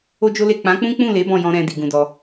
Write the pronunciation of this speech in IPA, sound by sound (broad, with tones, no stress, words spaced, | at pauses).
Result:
o˦d͡ʒo˦le˦˨ k͡pã˨˦k͡pũ˦k͡pũ˦˨le˨˦ bɔ̃˦˨jɔ̃˧ ɾɛ̃˨ di˨ɡũ˧dɔ˧